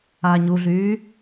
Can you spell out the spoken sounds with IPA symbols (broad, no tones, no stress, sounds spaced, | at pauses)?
aː ɲ u ɮ yː